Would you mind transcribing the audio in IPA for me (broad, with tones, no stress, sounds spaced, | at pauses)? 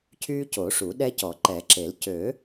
cʰ yː˦ c o˨˩˦ ʂ u˨˩˦ ɗ ɛ˦ c ɔ˨˩˦ ǃ ɛ˨˩˦ ǁ e˨˩˦ l c ø˨˩˦